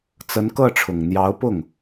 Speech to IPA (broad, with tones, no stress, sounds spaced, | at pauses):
t͡s ə˧˥ n k ɤ˥˩ ʈ͡ʂʰ ʊ˨˩ ŋ n̪ j ɑ˧˥ ʊ̯ p ʊ˥˩ ŋ